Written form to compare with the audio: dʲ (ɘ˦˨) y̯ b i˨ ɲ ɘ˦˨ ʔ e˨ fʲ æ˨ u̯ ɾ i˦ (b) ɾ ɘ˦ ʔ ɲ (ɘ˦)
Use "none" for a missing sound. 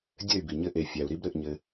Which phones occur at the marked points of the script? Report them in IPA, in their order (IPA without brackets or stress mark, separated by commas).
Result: ɘ˦˨, b, ɘ˦